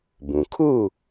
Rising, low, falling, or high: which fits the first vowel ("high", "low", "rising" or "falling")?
low